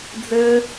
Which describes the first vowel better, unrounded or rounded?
unrounded